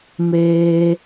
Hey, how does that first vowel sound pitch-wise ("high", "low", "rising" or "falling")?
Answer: high